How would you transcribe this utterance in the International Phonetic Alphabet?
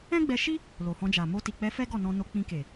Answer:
ɛ̃˦ɡ͡bɛ˧ʃi˦ | lo˨hɔ̃˧d͡ʒa˨ mo˧ti˨k͡pɛ˧fɛ˦ ɡɔ˦˨nɔ̃˧ no˧k͡pĩ˧ ke˨

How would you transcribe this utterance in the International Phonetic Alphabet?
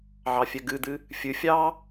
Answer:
ʕɑfʲɛɡɨd̪ɨ | fʲɨ fʲɑ

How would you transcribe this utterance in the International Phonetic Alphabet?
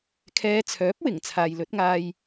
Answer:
kʰɛː˨˧t͡sʰœː˨˥p̚ wɪ˨˩ŋ t͡sʰaː˨jlɵ˨˥t̚ŋaː˧j

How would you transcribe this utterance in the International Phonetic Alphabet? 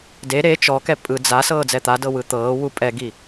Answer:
de ɾe t͡ʃɔkɛ pʼɯ d͡za sɤːd͡zɛt̪adɤ wɯt̪ɤːwu pʼɛɡi

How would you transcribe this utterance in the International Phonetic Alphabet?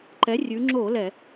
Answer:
ǃɛ˩˥ rʲʉ˩˧ŋ͡ǁo˧˩˧ lɛ˧˩˧

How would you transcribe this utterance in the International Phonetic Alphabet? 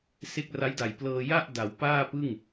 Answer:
se˦˥k̚ra˦˥jda˨˩j plɤː˧ ja˥˩ʔ da˩˦wpaː˥˩pɯ˥˩ŋ

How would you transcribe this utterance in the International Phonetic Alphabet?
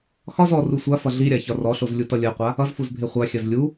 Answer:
xɒz ɔ rusʷafʌ ɮiɾʲa çɒrɔɬoz lʲutʌlʲɜqʷa | ʌzfuz bʱeχʷaxʲɜz lʲu

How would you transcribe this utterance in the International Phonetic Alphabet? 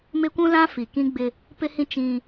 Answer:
mɪ˦kʷũ˦lã˦ fi˨kĩ˦ɡ͡bɪ˦ | pɪ˦hĩ˦ t͡ʃĩ˦

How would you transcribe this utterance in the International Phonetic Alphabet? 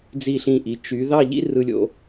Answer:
d͡zi˧˩ɬĩ˧˩ʔi˩˧ t͡ʃy˩˧ ðɑ˥˧ ʎḭ˥rɯ˧lʲo̰˧

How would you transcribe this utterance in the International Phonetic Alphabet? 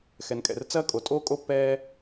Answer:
xɛ˩nkʼɛ̰˩r t͡sɐː˦ kʼo˩tʼoː˥kʼo˥pːɛː˦

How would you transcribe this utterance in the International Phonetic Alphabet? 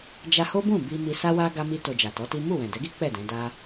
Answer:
d͡ʒa˧ho˦bũ˦˨ bi˧ mi˧sa˦wa˦ ɡa˦mi˦to˧d͡ʒa˨ tɔ˨˦ti˦ mu˦˨wɛ̃˨dɛ˨˦ɡi˦ k͡pɛ˦˨ dɛ̃˨˦da˦

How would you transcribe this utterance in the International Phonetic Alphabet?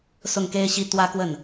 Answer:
sʊ˥˩ŋke˥ɪ̯ ɕi˥ t̪wä˥kwə˥˩n

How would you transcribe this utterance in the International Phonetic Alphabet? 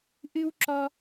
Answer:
ʔɨ˥w ǁɔ˥

